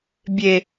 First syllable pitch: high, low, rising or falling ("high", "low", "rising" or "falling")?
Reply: low